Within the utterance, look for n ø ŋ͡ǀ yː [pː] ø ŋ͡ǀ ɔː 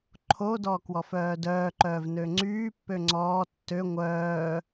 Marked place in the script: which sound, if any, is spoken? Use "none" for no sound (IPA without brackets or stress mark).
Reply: pː